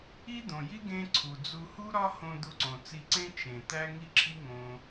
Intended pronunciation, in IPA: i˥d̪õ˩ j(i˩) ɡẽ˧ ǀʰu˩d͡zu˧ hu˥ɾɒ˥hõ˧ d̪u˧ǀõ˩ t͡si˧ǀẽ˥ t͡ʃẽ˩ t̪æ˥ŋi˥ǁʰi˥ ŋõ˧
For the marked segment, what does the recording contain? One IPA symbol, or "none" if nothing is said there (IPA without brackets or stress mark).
i˥